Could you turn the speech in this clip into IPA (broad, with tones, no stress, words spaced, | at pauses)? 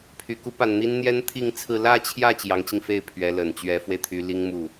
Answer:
pʰy˨˩ ku˥pa˨˩nn̪i˥n n̪jɛ˥nt̪ʰi˥˧ŋt͡sʰɹ̩˥˧ lä˥˧t͡ɕʰjä˥˩ t͡ɕjɑ˧˥ŋt͡ɕi˧ŋfe˥˩ɪ̯ pʰɥɛ˧˥lə˨˩n t͡ɕɥɛ˧˥fwe˧ɪ̯t̪ʰy˧˥ li˥ŋmu˥˩